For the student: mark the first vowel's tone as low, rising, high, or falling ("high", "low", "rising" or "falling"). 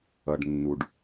low